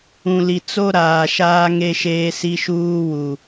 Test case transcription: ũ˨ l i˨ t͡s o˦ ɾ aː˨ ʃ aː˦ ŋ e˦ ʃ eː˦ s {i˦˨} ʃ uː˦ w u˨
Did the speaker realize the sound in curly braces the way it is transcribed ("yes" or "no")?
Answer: no